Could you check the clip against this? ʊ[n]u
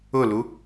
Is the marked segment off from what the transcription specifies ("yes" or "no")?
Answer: yes